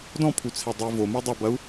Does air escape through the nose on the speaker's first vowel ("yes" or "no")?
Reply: yes